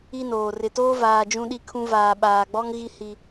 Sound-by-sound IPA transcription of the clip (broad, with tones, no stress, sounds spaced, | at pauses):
i˦ n oː˨ r ɪ˨ t oː˦ v aː˨ d͡ʒ ũ˦ ɗ i˦ kʰ ũ˦ v aː˨ ɓ aː˨ ɡ͡b ɔ˦ ŋ ɣ i˦ h i˦